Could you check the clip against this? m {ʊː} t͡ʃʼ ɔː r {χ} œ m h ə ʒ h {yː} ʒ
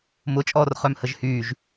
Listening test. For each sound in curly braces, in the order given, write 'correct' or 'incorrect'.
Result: incorrect, correct, correct

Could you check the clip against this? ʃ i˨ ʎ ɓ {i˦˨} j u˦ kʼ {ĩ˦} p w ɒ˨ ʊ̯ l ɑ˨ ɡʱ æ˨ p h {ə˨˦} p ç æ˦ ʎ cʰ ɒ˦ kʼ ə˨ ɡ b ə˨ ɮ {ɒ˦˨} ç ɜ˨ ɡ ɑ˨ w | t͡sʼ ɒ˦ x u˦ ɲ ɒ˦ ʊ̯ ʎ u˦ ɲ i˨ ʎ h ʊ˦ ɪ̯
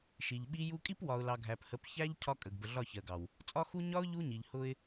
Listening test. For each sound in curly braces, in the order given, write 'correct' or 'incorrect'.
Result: incorrect, incorrect, correct, correct

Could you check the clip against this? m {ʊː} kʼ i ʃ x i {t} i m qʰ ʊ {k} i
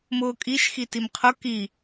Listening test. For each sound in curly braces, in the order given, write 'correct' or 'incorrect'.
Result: correct, correct, correct

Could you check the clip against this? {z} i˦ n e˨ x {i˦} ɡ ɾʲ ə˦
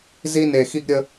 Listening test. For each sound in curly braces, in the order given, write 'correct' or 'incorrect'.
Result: correct, correct

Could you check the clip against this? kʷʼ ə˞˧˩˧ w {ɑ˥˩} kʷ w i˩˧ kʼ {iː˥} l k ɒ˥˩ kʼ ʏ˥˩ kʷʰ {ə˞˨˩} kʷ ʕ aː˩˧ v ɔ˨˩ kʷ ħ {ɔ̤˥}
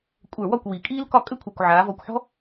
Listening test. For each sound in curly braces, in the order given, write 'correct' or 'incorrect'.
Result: incorrect, correct, correct, correct

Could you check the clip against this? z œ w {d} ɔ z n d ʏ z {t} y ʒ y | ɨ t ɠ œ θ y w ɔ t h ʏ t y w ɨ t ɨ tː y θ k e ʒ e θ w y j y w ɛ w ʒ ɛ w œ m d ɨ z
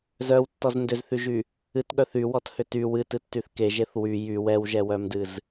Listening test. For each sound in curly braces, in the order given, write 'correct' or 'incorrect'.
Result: incorrect, incorrect

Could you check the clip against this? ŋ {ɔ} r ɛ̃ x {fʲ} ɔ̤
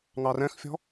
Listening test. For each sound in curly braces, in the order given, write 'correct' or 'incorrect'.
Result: incorrect, correct

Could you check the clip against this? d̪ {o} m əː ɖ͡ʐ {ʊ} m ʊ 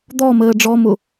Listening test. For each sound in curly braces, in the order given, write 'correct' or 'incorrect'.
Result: incorrect, incorrect

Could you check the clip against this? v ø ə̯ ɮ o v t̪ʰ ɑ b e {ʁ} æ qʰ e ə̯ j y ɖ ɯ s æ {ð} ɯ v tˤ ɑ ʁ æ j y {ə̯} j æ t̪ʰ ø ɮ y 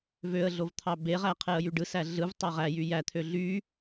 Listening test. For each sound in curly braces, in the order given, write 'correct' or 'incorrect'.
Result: correct, incorrect, incorrect

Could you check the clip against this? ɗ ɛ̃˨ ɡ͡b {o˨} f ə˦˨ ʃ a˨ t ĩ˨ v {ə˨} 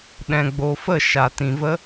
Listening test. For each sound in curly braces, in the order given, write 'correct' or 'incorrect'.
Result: correct, incorrect

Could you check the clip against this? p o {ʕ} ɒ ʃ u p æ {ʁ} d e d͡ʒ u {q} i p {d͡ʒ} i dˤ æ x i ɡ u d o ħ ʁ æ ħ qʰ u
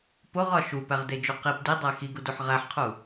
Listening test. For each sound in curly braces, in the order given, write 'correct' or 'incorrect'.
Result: incorrect, correct, correct, incorrect

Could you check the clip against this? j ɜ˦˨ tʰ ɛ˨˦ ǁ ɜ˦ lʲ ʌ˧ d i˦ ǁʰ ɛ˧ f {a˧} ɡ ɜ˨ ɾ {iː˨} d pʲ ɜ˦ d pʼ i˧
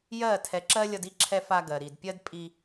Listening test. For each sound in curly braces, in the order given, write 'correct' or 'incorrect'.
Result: correct, incorrect

